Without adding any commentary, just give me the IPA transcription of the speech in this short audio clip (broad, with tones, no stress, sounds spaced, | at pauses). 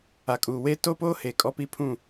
a˨ kʼ uː˨ w e˦ t o˦ p oː˦ h e˨ kʼ ɔ˦ p i˦ pʰ ũ˦˨